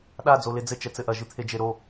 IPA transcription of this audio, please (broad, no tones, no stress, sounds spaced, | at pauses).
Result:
ɗ a d͡z o l e d͡z ɘ t͡ʃ ɛ t͡s ɘ ʔ ɐ ʒ ɨ t̪ʰ e d͡ʒ e ɾ o